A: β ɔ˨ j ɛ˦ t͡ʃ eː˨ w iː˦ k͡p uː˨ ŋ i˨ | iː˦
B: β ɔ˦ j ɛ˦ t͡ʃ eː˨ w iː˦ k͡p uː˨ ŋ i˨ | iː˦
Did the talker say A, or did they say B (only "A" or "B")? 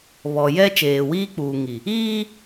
A